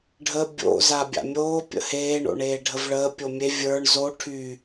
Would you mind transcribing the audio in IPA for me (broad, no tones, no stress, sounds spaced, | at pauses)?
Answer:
ɖʱ ə bʲ o̰ z a bʲ a̰ mʲ oː pʲ ə̰ h eː ɳ o̰ ɳ eː ɖʱ ə v ɭ əː pʲ o mʲ e vʲ ə˞ ɳ z o ʈʰ y